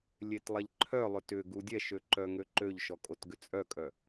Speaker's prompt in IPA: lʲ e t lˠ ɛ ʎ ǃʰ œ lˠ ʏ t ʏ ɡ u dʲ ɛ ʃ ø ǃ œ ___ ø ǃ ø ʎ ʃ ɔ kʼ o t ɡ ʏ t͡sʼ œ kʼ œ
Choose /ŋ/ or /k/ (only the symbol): ŋ